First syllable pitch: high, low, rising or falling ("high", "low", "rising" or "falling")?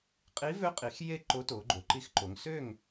rising